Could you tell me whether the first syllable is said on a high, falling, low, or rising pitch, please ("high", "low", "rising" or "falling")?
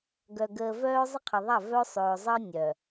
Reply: low